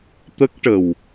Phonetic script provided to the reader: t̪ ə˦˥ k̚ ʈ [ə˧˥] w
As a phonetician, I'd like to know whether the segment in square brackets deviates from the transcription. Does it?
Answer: yes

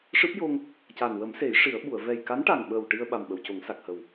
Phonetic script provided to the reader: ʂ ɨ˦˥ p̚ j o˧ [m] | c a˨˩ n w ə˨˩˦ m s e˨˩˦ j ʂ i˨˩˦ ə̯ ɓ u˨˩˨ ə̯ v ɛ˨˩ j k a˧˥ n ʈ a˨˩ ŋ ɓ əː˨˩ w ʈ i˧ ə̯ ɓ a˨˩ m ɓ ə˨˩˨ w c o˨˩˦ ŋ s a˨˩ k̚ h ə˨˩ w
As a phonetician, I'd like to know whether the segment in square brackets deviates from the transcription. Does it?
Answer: yes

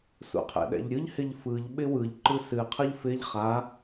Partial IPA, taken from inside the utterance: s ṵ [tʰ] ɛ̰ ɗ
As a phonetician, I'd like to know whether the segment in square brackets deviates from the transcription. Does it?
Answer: yes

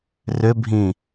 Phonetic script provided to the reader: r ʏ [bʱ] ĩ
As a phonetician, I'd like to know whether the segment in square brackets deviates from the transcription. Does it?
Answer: no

